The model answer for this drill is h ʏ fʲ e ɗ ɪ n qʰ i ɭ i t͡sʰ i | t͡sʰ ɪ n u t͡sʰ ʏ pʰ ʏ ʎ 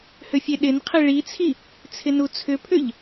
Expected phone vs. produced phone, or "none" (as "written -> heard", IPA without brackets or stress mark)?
none